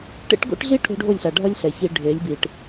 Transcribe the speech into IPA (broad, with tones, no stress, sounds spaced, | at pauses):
ʈ ḛ˦ ʈ ɡ o̰˦ ʈ ɮ i˦ ʈʰ o̤˦ ɖʱ o˦˨ lʲ ɬ a˨ ɖʱ ʌ˦ lʲ ɬ ɛ˨ ç i˨ ɖʱ e˨˦ lʲ b i˨ ʈ